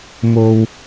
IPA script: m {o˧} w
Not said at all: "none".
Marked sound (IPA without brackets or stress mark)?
o˧